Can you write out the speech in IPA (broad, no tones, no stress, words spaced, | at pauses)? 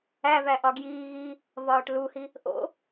ævæ ʔɒɡjiː ɣi | vɒːʈluhi | ʔo̰